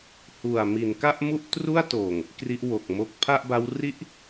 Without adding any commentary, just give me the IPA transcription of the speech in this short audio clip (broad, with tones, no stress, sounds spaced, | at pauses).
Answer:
h u˨˩ a̯ m i˩˦ n k a˥˩ ʔ m u˥˩ ʔ t r u˥˩ a̯ t oː˨˩ ŋ | k r i˦˥ ʔ w o˨˩ k̚ m o˦˥ k̚ pʰ a˥˩ ʔ b a˦˥ w r i˦˥ ʔ